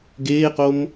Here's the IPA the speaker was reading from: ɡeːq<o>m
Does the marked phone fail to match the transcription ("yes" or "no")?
no